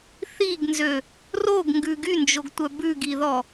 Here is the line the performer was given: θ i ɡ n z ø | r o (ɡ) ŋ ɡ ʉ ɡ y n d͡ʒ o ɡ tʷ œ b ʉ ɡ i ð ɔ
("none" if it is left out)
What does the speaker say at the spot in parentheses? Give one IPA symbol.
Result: ɡ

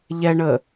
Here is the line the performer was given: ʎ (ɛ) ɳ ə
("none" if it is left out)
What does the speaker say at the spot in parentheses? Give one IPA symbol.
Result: ɛ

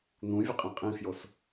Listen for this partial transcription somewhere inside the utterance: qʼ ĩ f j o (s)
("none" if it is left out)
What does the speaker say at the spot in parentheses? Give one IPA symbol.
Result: s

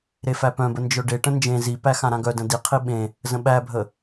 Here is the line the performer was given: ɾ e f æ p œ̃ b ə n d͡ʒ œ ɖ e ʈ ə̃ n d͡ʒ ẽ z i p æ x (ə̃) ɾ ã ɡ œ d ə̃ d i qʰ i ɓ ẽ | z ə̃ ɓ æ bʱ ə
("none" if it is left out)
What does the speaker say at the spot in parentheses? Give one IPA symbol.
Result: ã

